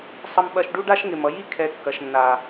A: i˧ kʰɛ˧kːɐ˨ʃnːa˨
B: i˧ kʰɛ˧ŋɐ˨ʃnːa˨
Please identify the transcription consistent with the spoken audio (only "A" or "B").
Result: A